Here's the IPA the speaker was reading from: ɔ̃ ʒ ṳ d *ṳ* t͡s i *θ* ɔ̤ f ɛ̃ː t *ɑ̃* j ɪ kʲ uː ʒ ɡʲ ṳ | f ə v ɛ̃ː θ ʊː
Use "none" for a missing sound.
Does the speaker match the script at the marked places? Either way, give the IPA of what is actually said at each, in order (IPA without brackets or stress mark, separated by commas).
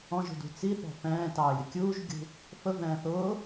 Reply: ṳ, θ, ɑ